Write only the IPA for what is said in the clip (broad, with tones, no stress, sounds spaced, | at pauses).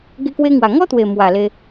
ɡ e˧ k w e˧ ŋ w a˨˩ ŋ ɔ˦ t̪ w e˨˩ m w a˨˩ l e˧